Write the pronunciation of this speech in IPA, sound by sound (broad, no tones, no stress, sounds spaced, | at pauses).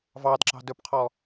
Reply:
v ɑ d ǁ ɑ̤ d ɵ p qʰ ɔ